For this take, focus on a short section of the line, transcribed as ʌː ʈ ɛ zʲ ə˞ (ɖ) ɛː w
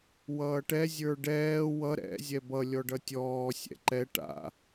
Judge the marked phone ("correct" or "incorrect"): correct